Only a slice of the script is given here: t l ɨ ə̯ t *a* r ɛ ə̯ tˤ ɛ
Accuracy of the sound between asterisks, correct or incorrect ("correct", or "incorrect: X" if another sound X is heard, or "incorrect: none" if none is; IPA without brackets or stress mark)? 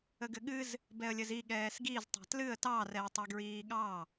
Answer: incorrect: ɑ